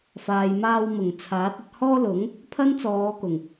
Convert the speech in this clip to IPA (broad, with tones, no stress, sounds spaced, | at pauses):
f aː˨ j m aː˧ w m ʊ˨˩ ŋ t͡sʰ aː˨˥ t̚ ɐ˧ t̚ h ɔː˥ l ʊ˨˥ ŋ | pʰ ɐ˥ n t͡s ɔː˨˧ k ʊ˨˩ ŋ